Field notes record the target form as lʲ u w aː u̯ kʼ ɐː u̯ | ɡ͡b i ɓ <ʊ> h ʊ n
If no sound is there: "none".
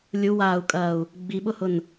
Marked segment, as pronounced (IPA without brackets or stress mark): ʊ